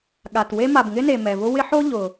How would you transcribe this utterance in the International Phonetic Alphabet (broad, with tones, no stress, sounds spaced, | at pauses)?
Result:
ɠ a˩ t w e˦ m a˩ b ŋ ɪ˥ n e˩ m ɛ˩ v ʊ˦ w ɪ˦ ħ o˥ ʎ ʊ˩